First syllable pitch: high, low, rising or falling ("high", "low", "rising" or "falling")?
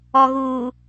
low